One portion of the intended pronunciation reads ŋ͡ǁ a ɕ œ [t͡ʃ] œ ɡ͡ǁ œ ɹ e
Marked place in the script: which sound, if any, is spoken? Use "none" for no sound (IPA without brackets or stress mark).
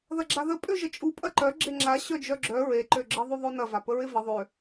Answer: d͡ʒ